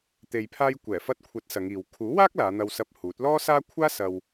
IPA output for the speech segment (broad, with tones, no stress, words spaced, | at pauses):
t̪e˨jpʰaː˧j kʷɛː˨˩fɐ˧t̚kʷʰɐ˨˥t̚ sɐ˨˧ŋiː˨w kʰuː˨˥waː˥k̚ laː˨˧n̪ɐ˧wsɐ˧p̚ huː˨˥t̚ lɔː˥saː˥ kʷʰaː˥ sɐ˧w